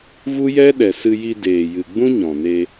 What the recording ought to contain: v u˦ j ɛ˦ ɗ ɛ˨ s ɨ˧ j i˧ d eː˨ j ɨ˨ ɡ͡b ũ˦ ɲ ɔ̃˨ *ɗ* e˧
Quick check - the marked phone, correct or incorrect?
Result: incorrect